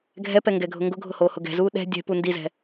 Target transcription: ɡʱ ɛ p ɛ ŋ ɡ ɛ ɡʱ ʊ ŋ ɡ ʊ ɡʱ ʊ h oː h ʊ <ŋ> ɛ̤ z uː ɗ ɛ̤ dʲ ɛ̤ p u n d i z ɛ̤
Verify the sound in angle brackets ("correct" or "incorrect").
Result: incorrect